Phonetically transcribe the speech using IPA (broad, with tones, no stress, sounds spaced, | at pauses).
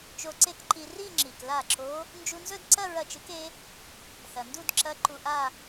t͡ʃ o˧ ǀ e˥˧ k ǃ i˧ r i˥˧ ŋ͡ǁ i˩ k l a˥˩ ǁ o˧˥ | n d͡ʒ u˧ n z ɵ˥˧ d ǀ ɐ˥˧ ɹ ɐ˥˩ t͡ʃ ɨ˧˥ k e˧˥ | θ ɐ˩ n d u˥˧ d ǁ ɐ˧˥ ǃ u˧ ʔ a˥˧